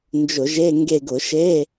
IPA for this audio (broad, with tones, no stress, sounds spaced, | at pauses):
n d͡ʒ ʊ˧˩˧ ʒ e˧˥˧ ŋ ɡ e˦˨ ɡ ʊ˧˩˧ ʃ e˧˥˧